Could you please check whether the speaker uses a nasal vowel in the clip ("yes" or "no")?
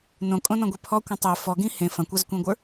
yes